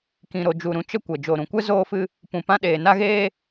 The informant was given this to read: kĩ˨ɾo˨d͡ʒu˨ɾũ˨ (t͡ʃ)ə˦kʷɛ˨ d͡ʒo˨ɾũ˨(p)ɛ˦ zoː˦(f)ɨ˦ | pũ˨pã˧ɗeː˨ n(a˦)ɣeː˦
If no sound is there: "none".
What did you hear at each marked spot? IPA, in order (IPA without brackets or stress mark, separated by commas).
t͡ʃ, kʷ, f, a˦